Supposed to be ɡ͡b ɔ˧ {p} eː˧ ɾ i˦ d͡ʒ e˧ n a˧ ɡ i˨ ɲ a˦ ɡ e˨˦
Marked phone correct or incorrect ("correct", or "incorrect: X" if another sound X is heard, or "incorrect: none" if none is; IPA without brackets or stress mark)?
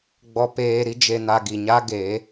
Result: correct